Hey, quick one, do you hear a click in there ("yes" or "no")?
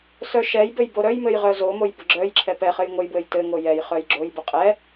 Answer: yes